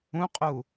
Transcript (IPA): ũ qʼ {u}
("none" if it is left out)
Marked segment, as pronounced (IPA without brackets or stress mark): u